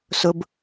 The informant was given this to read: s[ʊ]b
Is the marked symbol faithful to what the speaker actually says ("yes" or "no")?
yes